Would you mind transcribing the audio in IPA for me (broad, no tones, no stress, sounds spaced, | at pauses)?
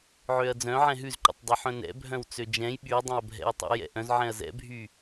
ʕ ø ɐ̯ d͡z œ̃ ʕ ɛ̃ ɦ ʉ z ǃ ɛ̰ tˤ dˤ œ ħ œ̃ n ɛ̰ bʱ œ̃ w t͡s ø d͡ʒ ɛ̃ j ɓ y dˤ ɛ̃ ɐ̯ bʱ ɛ̰ w tˤ ɛ̰ j ɛ̰ ʔ œ̃ z ʕ ɛ̃ ɐ̯ z ɛ̰ bʱ y